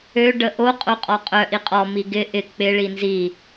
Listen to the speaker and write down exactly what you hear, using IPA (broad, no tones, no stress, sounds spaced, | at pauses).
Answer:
ø ɖ ə ʔ o qʼ o qʼ ɔ qʼ œ ʔ i qʼ ɔ m i ɡ ɪ ʔ ɪ k͡p ɪ ɭ i n z i